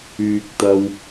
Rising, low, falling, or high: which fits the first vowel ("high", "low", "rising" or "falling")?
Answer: low